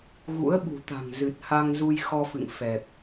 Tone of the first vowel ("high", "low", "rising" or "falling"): rising